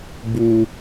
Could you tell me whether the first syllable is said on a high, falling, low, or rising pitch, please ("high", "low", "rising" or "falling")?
low